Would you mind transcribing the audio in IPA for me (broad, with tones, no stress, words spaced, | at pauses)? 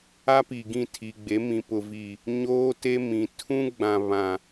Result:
a˦pi˨ ɡĩ˦˨tʰi˨ɡ͡be˨˦ mĩ˨pʊ˨vi˨ | ɲoː˦te˦ mĩ˨ tʰũ˦ɡ͡bã˨ βã˨